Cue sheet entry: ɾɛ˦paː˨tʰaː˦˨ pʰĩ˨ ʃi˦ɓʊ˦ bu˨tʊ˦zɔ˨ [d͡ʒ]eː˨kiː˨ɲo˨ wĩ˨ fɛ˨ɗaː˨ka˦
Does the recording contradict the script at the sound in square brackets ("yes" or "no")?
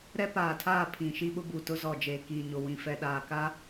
no